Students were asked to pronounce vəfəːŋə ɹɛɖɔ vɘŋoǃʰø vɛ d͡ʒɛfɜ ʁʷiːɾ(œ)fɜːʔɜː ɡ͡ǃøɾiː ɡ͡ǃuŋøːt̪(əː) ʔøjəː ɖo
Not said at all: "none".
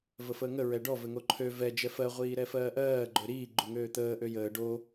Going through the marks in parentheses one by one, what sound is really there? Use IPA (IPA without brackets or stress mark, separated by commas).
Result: ɛ, əː